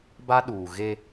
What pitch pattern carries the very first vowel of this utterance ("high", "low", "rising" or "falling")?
high